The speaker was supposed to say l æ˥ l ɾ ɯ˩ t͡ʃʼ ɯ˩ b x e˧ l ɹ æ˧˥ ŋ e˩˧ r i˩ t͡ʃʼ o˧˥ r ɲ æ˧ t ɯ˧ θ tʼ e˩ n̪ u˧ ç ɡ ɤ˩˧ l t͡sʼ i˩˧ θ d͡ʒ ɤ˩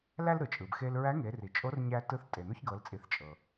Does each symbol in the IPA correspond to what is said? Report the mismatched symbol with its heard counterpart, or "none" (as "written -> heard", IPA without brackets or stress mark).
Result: d͡ʒ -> t͡ʃʼ